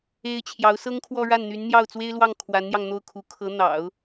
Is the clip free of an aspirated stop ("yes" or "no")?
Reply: no